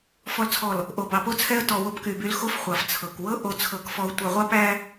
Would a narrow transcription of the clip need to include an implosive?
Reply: no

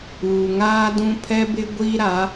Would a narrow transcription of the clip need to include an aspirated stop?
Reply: yes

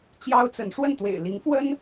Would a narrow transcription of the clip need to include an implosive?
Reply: no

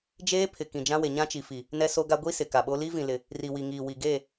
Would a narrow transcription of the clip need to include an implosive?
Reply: yes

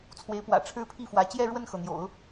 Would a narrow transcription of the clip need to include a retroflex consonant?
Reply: yes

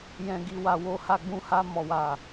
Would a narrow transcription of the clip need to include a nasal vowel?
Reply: yes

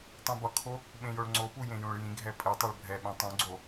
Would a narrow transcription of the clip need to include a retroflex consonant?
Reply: yes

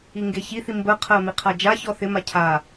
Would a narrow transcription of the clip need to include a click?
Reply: no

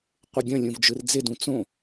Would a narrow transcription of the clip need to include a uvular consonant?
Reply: yes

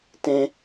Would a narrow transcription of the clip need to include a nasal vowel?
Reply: yes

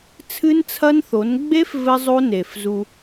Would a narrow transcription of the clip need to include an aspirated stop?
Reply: yes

